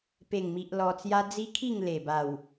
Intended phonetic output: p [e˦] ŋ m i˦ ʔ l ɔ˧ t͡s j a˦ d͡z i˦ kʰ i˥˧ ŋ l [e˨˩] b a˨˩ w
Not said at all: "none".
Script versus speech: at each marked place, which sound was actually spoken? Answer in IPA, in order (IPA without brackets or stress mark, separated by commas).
e˥˧, e˨˩